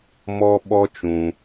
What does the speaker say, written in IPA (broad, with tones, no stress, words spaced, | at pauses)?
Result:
mɔ˦ɓɔ˦ t͡ʃũ˦